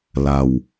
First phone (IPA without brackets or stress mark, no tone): l